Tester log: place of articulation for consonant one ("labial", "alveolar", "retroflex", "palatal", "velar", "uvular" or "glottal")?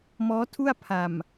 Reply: labial